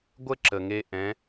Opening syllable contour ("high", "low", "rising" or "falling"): high